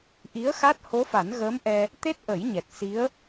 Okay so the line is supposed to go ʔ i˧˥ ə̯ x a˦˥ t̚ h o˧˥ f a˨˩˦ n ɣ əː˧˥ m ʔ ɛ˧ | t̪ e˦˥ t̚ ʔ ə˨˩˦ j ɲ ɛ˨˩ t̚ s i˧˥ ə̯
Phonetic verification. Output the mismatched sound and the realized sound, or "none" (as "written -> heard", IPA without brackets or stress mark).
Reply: none